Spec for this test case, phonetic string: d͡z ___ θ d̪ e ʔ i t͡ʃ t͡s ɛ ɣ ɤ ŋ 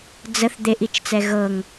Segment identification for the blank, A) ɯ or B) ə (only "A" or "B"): B